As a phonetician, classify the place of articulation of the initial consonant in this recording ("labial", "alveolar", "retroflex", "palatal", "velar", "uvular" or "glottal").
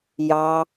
palatal